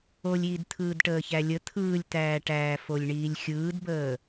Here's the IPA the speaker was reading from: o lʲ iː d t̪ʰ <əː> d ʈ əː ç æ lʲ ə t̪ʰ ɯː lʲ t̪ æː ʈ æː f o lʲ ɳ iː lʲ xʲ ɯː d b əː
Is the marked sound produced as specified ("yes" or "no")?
no